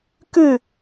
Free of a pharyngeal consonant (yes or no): yes